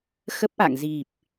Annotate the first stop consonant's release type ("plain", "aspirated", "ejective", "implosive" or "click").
plain